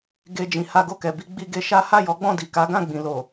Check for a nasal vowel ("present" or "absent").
present